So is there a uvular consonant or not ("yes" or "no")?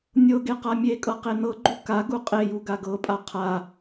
yes